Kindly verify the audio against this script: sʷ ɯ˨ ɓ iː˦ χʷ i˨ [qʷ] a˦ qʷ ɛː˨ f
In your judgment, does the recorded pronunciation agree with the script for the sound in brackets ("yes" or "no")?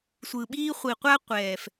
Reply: yes